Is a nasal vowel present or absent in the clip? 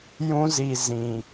present